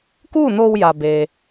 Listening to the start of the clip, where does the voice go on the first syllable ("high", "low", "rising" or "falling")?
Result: falling